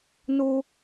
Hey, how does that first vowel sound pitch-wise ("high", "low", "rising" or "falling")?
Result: high